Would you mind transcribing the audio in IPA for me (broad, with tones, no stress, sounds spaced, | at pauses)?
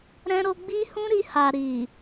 ɾ ɛ̃˦ ɾ o˦ ɡ͡b i˦ h ũ˦ ɾ i˧ h a˨ ɾ i˨